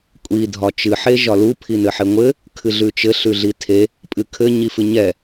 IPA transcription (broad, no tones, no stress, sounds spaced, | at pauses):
kʷʼ i dʱ ɒ t͡ʃ ɨ ħ e ʒ ɒ l u pʰ i n ɘ ħ e ŋʷ ɘ | kʰ ɨ ɮ ʉ t͡ʃ ɘ ɬ ʉ ɮ i tʰ e | pʼ ɨ kʰ ɘ ɲ i f ɨ ɲ ɛ